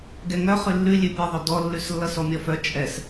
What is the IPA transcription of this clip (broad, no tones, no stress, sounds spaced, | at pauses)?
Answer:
ɡ ɛ ŋ œ χ ʉ lː ʉ lʲ ʉ pʲ e ðˤ œ d ɔ lː ʉ s lː ʌ s ɔ mʲ ɔ f œ t͡ʃʼ ɛ s